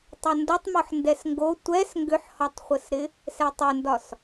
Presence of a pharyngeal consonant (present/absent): present